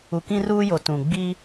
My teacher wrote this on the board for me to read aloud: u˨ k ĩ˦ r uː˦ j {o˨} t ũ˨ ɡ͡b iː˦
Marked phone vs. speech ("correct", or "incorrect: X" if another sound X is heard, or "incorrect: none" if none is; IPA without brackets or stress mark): correct